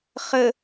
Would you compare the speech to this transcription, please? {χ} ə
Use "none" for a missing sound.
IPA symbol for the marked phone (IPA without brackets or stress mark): χ